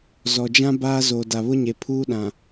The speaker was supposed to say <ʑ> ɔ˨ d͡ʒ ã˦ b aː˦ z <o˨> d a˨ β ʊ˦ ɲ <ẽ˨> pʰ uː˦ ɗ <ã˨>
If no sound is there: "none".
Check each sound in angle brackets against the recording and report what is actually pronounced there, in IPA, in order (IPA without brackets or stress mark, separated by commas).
z, o˨, e˨, ã˨